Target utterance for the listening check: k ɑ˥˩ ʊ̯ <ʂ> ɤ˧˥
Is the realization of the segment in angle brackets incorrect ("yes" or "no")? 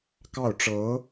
yes